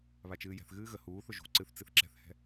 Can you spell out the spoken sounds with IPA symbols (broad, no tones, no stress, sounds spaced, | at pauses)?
β a t͡ʃ ɨː j ɛ̤ θ ɣ ɨː ɣ ə h uː θ ʊ ʒ ṳ ǀ ɨ θ t͡s ɨ θ ǁ ɛ̤ θ h ɛ̤